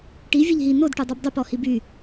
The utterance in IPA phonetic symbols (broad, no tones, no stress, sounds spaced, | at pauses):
ʈ i vʲ ɛ ʎ ɦ i n o d ʈ y dˤ o b dˤ y p ɔ h i b y